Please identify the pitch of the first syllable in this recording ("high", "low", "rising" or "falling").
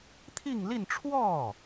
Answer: falling